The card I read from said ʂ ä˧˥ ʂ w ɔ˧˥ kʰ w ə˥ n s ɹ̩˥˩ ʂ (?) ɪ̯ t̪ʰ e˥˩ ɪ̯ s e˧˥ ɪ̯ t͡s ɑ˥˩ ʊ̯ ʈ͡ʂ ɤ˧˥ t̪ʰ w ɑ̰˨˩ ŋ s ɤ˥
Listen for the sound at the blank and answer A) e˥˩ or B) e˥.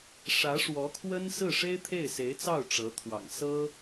B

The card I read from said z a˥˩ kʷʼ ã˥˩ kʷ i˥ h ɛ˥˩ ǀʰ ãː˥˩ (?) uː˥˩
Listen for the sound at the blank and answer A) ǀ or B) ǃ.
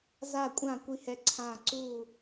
A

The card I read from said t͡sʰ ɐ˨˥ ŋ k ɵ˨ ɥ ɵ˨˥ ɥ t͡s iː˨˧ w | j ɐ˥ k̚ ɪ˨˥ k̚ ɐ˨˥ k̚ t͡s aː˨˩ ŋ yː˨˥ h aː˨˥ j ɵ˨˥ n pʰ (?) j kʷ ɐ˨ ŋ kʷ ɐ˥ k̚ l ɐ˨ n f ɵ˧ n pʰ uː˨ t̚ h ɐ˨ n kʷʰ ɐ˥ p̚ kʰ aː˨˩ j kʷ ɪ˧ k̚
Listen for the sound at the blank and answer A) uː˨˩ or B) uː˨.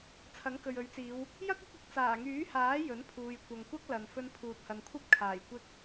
B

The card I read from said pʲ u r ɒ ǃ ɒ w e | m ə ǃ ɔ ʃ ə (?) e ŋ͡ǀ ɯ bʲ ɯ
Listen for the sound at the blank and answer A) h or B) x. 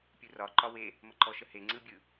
A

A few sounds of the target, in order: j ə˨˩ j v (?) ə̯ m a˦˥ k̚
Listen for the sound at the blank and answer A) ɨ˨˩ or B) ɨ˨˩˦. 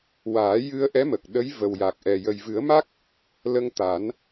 B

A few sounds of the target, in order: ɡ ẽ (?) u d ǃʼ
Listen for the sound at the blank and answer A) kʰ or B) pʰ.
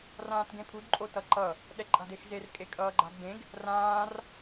B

